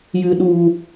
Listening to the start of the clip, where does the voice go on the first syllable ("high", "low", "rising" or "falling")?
low